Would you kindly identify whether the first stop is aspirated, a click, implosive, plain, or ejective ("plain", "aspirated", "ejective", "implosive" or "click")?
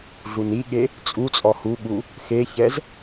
implosive